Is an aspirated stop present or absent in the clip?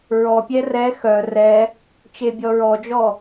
absent